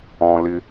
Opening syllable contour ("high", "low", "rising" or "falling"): low